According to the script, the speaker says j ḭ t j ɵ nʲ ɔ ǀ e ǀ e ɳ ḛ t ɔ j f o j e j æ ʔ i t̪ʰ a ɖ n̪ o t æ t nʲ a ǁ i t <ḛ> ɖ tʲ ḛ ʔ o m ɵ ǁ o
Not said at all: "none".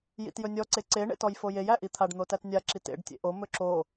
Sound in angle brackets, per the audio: ḛ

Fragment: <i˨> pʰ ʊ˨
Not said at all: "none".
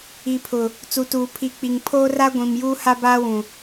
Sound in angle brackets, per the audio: i˨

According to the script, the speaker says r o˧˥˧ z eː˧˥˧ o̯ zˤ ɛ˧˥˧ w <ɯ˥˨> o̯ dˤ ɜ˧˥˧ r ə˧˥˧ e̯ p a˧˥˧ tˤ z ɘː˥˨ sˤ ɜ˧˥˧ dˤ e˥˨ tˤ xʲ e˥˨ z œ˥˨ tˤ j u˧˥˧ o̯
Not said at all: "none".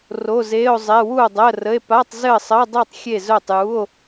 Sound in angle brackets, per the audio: u˥˨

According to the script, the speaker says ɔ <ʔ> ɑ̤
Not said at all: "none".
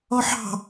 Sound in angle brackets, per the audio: ħ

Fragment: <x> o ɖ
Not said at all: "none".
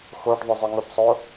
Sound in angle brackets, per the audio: x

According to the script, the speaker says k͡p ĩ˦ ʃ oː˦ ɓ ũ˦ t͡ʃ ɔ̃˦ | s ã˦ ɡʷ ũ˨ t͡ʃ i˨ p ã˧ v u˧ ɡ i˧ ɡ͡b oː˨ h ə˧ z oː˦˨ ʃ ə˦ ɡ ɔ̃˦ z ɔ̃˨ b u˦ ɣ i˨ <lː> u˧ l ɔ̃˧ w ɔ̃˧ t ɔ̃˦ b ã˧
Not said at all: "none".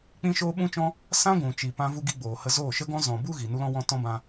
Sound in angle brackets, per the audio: n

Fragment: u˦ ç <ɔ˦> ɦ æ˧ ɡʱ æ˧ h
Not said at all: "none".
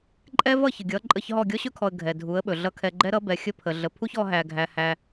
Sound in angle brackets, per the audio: ɔ˧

